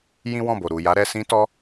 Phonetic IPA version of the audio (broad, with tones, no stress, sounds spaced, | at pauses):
j ĩ˦ w ɔ̃˦˨ b o˨ ɾ u˨ j a˨˦ ɾ ɛ˧ s ĩ˧ t ɔ˧